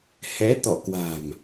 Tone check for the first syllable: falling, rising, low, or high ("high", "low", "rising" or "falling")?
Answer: rising